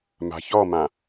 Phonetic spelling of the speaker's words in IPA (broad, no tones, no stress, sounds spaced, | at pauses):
m a̤ ç ɔ m ã